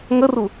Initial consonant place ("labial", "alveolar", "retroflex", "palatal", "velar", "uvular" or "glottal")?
velar